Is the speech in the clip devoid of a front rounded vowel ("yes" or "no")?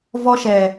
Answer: yes